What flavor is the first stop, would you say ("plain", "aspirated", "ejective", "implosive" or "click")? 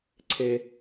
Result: click